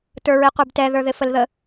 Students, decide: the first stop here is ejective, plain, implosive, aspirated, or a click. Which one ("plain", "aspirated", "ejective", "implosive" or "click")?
plain